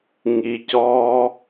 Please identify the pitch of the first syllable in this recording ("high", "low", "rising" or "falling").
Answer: low